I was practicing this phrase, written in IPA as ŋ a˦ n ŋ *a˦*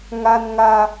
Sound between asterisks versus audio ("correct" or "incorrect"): correct